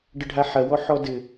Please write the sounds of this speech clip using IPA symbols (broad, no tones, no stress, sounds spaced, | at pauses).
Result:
ɖ ə ɖʱ a ħ ɐ w ɔ ħ ɔ d ɘ